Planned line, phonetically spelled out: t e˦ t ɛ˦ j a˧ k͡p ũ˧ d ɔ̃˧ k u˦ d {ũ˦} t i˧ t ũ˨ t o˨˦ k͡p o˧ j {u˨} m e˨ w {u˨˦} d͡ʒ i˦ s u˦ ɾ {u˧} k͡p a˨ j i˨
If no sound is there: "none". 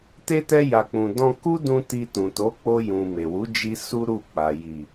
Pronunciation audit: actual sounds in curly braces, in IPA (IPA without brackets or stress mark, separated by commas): ũ˧, ũ˨, u˨˦, u˦˨